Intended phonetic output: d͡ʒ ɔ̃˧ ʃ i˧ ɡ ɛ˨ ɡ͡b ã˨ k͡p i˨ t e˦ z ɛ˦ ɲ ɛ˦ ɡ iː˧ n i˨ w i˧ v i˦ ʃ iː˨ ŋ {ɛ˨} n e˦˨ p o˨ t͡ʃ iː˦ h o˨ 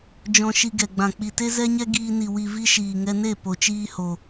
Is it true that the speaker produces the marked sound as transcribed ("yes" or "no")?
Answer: no